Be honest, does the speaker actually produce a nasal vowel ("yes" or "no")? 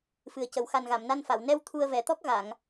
no